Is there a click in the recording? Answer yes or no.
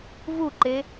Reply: yes